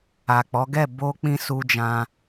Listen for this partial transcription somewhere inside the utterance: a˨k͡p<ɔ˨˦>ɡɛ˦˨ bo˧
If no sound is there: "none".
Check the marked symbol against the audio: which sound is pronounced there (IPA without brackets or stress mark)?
ɔ˨˦